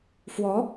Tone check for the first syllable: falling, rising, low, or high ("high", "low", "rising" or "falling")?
rising